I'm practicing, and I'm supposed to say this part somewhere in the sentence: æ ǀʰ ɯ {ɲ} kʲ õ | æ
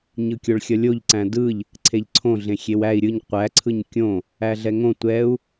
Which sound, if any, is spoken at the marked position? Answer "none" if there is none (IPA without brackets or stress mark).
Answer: ɲ